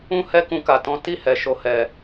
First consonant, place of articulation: glottal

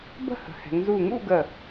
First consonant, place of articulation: labial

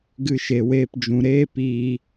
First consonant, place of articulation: velar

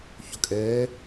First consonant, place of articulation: palatal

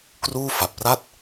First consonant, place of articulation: velar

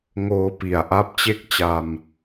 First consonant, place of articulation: velar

